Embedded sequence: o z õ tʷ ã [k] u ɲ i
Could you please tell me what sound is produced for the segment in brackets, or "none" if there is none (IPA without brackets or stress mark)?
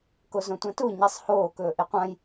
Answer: t